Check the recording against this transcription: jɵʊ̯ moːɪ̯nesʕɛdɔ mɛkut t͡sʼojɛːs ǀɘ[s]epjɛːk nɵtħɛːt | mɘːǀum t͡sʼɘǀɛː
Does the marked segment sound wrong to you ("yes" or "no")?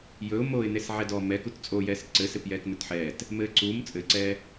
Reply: no